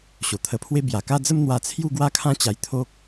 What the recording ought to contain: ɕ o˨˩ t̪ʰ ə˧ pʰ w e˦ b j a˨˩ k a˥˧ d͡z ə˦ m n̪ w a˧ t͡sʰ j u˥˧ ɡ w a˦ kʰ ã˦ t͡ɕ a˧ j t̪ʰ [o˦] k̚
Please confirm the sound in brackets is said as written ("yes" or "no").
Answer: yes